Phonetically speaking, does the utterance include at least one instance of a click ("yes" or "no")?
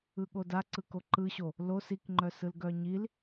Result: yes